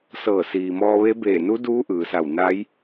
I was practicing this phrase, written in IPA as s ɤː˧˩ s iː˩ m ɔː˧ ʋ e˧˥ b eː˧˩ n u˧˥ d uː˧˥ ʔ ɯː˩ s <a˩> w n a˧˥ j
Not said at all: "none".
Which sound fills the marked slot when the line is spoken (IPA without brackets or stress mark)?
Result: a˧˩